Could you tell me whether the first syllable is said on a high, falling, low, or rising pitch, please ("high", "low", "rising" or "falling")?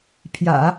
low